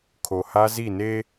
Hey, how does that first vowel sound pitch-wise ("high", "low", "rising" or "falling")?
low